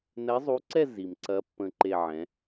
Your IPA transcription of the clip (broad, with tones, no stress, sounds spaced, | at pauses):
n ɛ˧˥ zˤ u˧˥ ǀ ɛ˥˧ z i˨ m ǀ ɐ˧˥ pː ə̃˥˧ ǃ e˥˧ ʕ ɛ̃˧˥